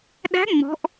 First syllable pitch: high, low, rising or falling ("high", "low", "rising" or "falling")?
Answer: rising